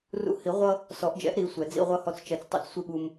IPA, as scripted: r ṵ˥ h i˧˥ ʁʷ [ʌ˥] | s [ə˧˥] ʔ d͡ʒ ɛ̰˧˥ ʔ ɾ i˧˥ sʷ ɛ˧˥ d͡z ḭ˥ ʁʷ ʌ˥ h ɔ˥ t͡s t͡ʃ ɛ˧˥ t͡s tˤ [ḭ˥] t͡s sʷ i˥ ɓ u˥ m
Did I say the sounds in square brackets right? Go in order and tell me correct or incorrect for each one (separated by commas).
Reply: correct, incorrect, correct